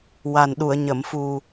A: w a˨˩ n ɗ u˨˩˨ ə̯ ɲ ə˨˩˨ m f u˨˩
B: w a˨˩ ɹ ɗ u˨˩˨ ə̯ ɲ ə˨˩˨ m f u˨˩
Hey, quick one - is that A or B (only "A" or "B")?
A